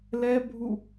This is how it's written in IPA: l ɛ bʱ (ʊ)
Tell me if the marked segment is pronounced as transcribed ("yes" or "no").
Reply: no